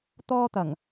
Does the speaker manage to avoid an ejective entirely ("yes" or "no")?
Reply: yes